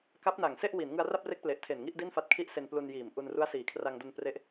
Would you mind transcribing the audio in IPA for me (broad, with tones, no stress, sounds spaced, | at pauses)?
k a˦˥ p̚ n a˨˩ ŋ s e˥˩ ʔ w i˩˦ n ŋ ɯ˧ a̯ r a˥˩ p̚ r e˦˥ k̚ p l e˨˩ ʔ tʰ e˨˩ n ŋ i˥˩ ʔ d i˥˩ n f a˦˥ t̚ kʰ i˥˩ ʔ s e˧ n p l u˧ n j iː˨˩ m ʔ u˧ n r u˦˥ a̯ s iː˩˦ kʰ r a˧ ŋ d o˧ n p r e˦˥ ʔ